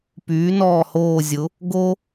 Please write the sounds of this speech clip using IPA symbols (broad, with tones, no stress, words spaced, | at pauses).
pyː˨˥nɔː˦˨hoː˦˨zʲʊ˨˥ | ɡo˦